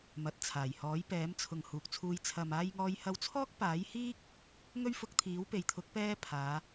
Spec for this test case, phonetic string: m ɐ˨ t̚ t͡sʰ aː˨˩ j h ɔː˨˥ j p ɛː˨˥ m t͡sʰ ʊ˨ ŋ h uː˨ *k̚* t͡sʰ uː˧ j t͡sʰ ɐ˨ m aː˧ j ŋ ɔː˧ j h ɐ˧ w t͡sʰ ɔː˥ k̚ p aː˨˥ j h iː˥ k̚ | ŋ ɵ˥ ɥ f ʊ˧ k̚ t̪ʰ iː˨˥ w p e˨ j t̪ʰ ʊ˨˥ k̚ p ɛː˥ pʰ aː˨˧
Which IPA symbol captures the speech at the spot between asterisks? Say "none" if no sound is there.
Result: k̚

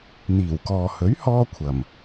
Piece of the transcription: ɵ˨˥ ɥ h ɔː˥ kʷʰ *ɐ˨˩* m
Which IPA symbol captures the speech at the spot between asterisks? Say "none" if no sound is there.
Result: ɐ˨˩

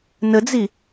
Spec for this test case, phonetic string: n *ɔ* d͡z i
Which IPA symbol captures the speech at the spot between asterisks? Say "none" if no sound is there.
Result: ə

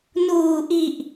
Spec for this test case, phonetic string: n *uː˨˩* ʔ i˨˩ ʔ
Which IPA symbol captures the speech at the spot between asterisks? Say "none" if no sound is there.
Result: uː˨˩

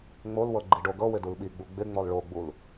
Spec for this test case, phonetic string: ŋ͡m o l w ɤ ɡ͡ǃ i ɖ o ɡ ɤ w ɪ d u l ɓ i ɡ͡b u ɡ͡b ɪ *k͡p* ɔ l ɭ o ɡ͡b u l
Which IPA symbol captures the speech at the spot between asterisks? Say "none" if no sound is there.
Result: ŋ͡m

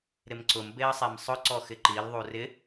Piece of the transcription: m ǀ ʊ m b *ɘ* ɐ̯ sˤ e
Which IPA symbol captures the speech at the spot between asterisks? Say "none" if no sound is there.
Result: e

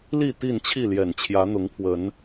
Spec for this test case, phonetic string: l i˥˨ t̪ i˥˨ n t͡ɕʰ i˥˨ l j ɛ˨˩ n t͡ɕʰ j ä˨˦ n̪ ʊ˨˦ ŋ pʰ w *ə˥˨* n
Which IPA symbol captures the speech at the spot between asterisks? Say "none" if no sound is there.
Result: ə˨˦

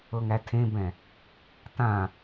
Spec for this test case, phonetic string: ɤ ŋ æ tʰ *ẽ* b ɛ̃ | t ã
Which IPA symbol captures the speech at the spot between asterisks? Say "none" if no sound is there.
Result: ẽ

